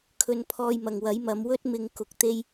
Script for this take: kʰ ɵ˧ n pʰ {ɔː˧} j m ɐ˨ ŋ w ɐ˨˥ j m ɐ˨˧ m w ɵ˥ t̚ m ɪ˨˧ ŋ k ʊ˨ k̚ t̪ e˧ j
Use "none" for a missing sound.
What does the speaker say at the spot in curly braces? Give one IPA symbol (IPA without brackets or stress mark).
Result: ɔː˧